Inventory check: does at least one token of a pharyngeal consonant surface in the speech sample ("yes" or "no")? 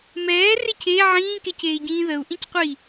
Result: yes